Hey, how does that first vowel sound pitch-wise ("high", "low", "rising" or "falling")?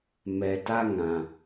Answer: low